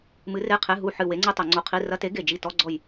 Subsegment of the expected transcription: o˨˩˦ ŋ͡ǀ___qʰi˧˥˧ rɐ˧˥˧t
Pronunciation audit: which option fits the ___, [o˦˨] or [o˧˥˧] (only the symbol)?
o˧˥˧